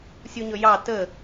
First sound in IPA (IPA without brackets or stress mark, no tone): sʲ